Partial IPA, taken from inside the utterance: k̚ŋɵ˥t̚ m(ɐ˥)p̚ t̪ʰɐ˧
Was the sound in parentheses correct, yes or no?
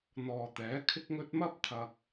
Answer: yes